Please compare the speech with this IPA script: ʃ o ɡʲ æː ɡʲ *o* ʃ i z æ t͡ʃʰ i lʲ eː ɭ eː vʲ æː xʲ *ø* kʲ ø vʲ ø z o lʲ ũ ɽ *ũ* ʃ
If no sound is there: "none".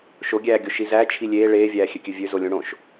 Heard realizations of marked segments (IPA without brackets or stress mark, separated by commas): o, ø, õ